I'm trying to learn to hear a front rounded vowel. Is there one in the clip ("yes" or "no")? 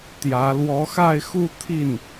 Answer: no